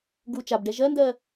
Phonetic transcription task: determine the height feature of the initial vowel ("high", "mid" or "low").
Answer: high